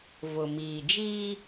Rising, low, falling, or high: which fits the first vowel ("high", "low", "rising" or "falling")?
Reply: low